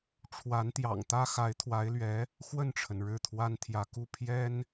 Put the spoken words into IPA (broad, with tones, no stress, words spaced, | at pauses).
ʈ͡ʂʰwa˧˥nt̪jɑ̰˨˩ŋt̪ä˥ xa˧˥ɪ̯t̪ʰwa˧˥ɪ̯lɥɛ˧˥ | xwə˥˩nʈ͡ʂʰə˩n ɻɻ̩˥˩t̪ʰwa˥nt̪ʰjä˧˥ku˥˩ pʰjɛ˥n